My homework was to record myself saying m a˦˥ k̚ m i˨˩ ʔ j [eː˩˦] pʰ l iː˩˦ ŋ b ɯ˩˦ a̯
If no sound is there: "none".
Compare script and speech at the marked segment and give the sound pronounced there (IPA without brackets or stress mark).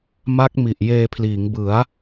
eː˧